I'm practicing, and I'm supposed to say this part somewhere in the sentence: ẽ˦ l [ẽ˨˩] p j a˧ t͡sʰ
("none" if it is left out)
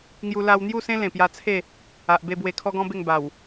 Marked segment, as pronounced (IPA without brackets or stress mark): ẽ˨˩